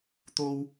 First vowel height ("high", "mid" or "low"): mid